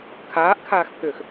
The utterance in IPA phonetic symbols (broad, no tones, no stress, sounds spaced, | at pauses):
kʰ aː ʔ kʰ aː x pʰ ʏː x